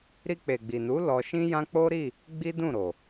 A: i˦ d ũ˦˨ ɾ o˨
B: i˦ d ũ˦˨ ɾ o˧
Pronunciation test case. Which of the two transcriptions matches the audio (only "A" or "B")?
A